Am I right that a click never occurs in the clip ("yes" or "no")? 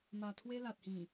yes